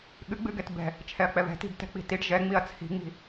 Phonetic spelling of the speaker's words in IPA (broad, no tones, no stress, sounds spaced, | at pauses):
ɠ ɨ ɡ͡b ɨ ɡ ɛ t b ɛ̤ | t͡ʃʰ ɛ ɐ̯ k͡p ɛ β ɛ̤ t i̤ b t ɛ̤ k͡p i̤ t i ɖ ʒ ɛ ŋ͡m i ɐ̯ t͡sʰ i̤ ŋ͡m i̤